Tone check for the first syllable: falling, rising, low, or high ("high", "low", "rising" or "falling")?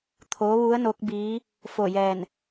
rising